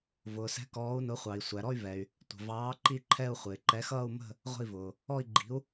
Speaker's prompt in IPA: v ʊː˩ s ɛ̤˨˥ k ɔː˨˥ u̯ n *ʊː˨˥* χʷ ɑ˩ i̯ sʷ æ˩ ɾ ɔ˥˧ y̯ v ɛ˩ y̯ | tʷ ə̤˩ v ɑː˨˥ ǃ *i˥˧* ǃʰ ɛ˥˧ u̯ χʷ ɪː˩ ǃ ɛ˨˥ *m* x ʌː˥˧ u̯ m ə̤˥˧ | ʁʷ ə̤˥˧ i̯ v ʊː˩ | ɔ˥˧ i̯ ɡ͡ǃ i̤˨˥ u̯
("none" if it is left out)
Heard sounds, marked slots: ʊ˨˥, i˥˧, none

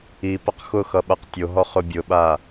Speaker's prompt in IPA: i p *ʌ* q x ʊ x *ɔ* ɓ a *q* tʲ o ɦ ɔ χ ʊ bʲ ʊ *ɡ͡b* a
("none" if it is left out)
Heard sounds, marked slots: ʌ, ʌ, q, ɓ

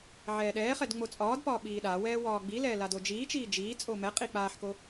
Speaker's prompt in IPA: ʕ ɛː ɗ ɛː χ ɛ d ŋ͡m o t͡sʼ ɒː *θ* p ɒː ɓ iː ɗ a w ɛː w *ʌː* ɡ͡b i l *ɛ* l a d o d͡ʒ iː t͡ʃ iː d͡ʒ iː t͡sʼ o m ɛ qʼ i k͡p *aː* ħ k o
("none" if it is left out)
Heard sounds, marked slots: d, ɒː, ɛː, aː

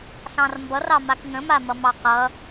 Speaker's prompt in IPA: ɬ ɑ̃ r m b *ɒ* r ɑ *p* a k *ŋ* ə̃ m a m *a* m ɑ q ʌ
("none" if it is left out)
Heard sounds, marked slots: ʌ, m, ŋ, ʌ

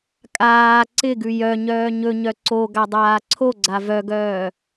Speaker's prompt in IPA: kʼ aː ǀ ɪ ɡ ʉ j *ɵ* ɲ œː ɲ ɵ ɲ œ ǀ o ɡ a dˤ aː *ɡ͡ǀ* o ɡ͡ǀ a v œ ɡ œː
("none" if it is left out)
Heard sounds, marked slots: œ, ǀʰ

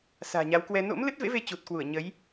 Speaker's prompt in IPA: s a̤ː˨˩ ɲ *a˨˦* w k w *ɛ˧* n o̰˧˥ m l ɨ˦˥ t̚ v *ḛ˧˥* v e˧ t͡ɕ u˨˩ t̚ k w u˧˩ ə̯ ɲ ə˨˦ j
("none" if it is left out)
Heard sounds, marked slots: a˨˦, ɛ˧, ḛ˧˥

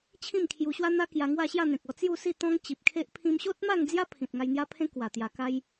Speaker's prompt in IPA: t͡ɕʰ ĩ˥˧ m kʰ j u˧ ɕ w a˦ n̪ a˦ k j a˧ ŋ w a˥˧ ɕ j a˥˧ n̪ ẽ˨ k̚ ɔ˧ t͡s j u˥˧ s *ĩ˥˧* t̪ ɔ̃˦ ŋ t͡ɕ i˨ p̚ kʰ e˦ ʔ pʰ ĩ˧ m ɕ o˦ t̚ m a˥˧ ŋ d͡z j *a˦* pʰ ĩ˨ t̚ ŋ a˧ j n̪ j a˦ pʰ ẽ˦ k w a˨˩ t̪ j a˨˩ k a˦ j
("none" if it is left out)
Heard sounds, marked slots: i˥˧, a˦

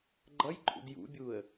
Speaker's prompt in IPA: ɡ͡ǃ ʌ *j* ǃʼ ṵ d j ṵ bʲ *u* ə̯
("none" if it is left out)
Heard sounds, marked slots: j, u

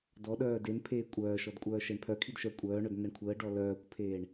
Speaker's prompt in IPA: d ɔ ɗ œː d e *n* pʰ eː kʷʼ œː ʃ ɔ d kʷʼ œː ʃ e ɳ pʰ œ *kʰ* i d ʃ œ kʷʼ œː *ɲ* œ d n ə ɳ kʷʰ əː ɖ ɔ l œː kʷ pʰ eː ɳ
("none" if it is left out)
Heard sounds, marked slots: n, kʰ, ɳ

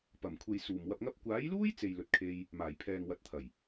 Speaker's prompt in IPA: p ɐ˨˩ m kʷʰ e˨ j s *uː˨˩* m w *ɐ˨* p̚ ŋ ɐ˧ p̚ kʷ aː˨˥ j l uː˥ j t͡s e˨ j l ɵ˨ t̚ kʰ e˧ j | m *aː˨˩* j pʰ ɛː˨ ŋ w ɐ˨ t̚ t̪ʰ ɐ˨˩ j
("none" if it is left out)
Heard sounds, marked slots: uː˨˩, ɐ˨, aː˨˩

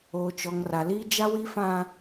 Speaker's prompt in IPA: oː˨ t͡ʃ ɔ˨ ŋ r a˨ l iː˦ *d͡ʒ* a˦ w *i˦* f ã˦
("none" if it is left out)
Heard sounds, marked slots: d͡ʒ, i˦

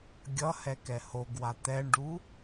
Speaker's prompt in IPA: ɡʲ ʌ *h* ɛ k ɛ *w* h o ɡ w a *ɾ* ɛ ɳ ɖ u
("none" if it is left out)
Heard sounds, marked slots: h, none, t̪

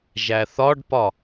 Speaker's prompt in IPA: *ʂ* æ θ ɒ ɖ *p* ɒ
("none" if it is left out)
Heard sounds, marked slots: ʒ, p

